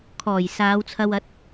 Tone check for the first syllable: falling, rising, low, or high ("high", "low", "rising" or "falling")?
low